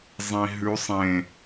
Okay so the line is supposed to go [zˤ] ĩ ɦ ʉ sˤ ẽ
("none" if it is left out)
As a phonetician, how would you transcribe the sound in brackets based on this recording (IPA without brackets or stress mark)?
zˤ